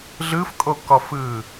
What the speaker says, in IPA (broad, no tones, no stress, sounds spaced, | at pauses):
ɮ ɯ f kʼ o k ɔ f ɯː